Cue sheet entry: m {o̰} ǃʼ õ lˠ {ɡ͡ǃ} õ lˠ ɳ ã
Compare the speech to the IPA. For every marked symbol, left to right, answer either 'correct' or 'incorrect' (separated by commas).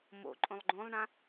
correct, correct